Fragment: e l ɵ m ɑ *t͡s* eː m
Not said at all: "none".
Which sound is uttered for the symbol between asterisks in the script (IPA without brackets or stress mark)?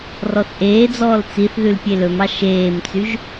ʃ